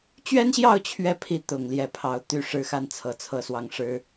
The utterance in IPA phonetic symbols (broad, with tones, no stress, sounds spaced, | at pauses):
t͡ɕ ɥ ɛ˥ n ɕ j ɑ˥˧ ʊ̯ t͡ɕʰ ɥ ɛ˥˩ pʰ i˧˥ t̪ ʊ˨˩ ŋ l j ɛ˥˩ pʰ ɑ˧˥ ʊ̯ t̪ y˥˩ ʂ ɻ̩˥ x a˥˩ n t͡sʰ ɤ˧˥ t͡sʰ ɤ˥˧ s w ɑ˥˩ ŋ ʂ ɻ̩˥